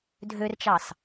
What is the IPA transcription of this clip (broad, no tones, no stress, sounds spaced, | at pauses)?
dʱ ø r t͡ʃ ɑ s